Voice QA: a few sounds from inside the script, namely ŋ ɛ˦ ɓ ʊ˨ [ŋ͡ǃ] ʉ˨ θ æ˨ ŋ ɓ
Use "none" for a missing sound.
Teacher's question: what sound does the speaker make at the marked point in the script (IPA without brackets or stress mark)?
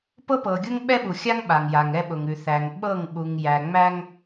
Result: ŋ